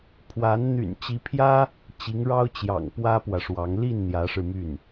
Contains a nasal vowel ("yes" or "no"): no